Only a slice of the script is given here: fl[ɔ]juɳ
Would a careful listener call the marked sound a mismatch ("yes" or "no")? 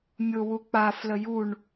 yes